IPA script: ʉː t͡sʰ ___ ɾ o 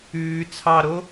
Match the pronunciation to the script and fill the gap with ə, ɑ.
ɑ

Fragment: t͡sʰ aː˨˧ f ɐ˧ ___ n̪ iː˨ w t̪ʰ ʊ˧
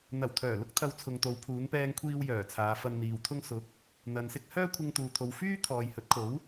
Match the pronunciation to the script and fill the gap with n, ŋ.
n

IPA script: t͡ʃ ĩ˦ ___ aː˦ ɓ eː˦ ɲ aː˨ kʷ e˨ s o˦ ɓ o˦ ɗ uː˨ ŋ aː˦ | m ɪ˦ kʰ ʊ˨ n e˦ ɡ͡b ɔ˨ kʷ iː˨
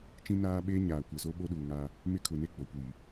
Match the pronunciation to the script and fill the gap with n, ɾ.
n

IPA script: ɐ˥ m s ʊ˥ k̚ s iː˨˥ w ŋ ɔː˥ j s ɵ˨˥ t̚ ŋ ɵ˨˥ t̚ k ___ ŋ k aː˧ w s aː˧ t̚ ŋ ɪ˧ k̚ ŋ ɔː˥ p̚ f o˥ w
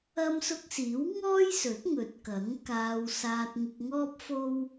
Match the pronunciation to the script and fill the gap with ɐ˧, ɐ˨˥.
ɐ˨˥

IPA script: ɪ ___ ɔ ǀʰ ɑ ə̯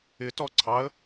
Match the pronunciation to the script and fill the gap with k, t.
t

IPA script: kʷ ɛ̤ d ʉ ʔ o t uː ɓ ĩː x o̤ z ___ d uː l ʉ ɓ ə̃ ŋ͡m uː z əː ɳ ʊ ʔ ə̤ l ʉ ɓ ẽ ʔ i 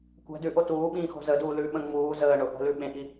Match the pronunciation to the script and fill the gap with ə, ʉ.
ə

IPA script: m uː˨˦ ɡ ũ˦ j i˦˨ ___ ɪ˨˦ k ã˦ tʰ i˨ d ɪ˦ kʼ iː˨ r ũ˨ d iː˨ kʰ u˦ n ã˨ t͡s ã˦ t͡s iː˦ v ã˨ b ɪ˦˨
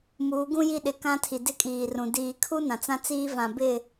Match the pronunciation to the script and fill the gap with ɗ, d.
ɗ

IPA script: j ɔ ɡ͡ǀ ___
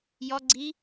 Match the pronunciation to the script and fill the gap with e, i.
i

